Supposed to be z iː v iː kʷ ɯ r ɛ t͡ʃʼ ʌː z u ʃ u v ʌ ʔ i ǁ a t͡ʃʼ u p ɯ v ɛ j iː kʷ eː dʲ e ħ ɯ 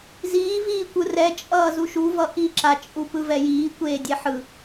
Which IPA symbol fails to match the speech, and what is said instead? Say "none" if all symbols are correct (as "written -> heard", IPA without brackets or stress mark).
none